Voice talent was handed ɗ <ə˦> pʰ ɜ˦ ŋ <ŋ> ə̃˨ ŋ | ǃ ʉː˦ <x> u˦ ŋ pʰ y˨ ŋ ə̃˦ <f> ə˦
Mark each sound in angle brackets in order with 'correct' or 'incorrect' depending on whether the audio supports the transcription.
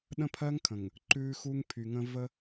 incorrect, incorrect, correct, incorrect

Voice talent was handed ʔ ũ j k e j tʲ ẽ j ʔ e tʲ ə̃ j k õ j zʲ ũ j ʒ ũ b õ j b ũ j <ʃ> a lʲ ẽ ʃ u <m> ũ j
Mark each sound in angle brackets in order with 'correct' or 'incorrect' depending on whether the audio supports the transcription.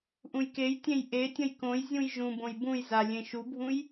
incorrect, incorrect

